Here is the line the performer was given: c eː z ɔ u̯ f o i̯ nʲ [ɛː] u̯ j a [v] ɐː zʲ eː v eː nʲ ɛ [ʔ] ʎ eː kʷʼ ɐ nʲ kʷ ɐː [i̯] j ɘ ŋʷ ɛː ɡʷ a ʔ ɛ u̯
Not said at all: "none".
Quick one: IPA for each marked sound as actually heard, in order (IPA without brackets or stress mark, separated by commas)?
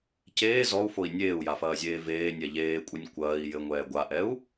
eː, f, none, i̯